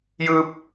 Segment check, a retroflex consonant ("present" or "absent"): absent